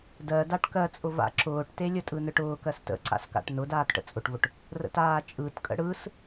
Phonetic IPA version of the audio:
dɜdaʈ kɜt͡sʼʊva̰ ǁʊːʈtelʲə tʼɯnɯʈʊːkɜs tə̰ǀa̰s ka̰ʈnʊ daːtʈə̰t͡sʼʊʈvʊʈ | rə̰taːt͡ʃʼɯtkʼə̰ ɽɯs

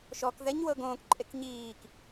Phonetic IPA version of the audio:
ʃɔk ðɛɲ wɤɡõːk ǃʼekɲiːk

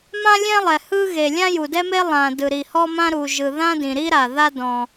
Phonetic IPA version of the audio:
mã˥lʲɛ̃˥lˠɛ˩ hɯ˥ɣe˩ lʲã˥ju˩dɛ˥me˥ lˠã˩ dɯ˩ɾi˩hɔ˥mã˥ ɾu˩ʒɯ˩ ðã˥dĩ˩ɾi˥ɾa˩ ða˥dɔ̃˩

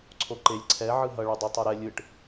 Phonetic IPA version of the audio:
ǀʰoǃelʲ ǀʰɛ ʕɯɦʌ ɭudˤutˤoɾɛ lʲɯʈ

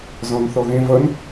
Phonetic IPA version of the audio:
zɔ̃nθɔɣẽ vʌn

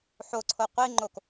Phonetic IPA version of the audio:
ħoǀʰo qʷiŋ͡ǃok

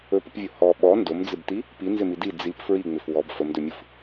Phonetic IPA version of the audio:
ɵpəpvʲo hɔ ɓɔ ndomd͡zɪbti | pinzɪmi di d͡zip fɹiŋ͡mɪf wɔb fəmdɵmʲɯf

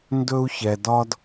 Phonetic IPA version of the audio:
ndɵ˧u̯çɛ˩dɒ˧d

